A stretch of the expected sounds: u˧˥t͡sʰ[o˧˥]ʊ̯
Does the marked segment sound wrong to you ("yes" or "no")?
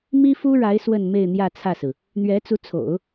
yes